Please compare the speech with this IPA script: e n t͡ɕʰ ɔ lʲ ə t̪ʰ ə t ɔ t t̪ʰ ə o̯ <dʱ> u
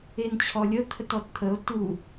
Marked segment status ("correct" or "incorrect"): incorrect